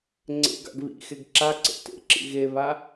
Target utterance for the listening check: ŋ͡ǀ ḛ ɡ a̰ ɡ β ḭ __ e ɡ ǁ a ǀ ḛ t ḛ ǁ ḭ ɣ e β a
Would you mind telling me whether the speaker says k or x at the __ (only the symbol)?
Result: x